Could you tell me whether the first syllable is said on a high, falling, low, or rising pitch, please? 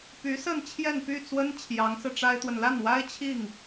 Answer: rising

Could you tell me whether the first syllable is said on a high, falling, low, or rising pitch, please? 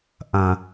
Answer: low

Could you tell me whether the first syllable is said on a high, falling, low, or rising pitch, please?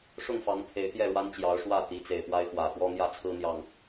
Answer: falling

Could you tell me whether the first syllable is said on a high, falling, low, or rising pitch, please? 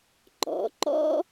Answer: rising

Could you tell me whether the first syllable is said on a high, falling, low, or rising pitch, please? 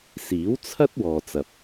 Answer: rising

